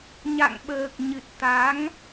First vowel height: low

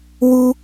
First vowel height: high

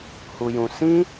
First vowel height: high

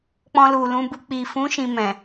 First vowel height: mid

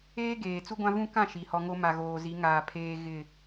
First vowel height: mid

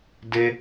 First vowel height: mid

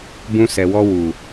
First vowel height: high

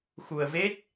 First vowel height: high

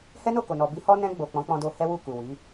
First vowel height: mid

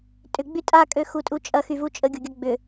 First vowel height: high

